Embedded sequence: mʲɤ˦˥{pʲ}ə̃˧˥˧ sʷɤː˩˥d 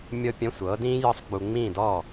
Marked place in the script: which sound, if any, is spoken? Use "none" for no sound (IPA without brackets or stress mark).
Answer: pʲ